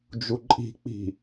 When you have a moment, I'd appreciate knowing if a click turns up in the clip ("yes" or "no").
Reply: yes